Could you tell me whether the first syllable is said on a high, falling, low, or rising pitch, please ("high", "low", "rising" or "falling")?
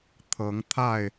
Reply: rising